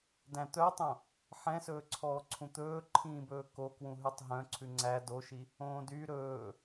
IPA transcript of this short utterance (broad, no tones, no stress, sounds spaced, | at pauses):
d æ̃ t̪ œ tˤ õ | ħ ɛ̃ s ɵː ǀʰ ɔː ǀʰ ũ t̪ ɵː ǃʰ ĩː b ɵː k o k w ũ ɦ ʉ tˤ ɦ œ̃ ǀʰ ʉ ŋ͡ǀ æ d o ʃ i | õː d y ɾ ɵː